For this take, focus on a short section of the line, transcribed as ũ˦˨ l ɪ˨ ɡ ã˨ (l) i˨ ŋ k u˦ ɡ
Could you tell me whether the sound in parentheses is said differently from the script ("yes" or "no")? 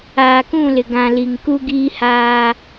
no